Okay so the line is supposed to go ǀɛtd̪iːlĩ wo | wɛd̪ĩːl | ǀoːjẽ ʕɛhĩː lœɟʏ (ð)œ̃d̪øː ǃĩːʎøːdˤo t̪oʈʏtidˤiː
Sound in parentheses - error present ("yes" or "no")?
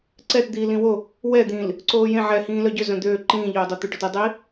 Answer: yes